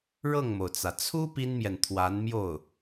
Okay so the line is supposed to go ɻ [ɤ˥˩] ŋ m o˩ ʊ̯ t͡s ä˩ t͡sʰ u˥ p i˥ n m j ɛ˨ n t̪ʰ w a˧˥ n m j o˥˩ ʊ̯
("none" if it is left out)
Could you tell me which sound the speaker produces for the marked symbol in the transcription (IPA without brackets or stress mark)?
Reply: ɤ˥˩